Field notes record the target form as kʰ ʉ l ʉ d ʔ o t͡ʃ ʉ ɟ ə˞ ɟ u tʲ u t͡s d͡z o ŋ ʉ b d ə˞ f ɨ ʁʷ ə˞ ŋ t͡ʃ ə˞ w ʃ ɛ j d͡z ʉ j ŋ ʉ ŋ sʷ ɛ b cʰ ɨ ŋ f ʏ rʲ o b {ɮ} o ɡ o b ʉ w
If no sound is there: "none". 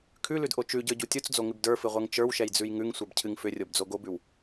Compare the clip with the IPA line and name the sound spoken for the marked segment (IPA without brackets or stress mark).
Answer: d͡z